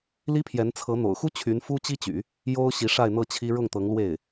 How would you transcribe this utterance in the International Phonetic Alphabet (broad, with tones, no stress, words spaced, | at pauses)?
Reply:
li˥pʰjɛ˧˥nt͡sʰɤ˧˥ n̪o̰˨˩ʊ̯xu˥ t͡ɕʰy˧˥nfu˥ t͡ɕi˥t͡ɕy̰˨˩˦ | jo˥ʊ̯ ɕi˧˥ʂa˥˧ɪ̯ n̪ɤ˥˩t͡ɕʰi˥ ɻʊ˥˩ŋt̪ɤ˧˥ŋlwe˥˩ɪ̯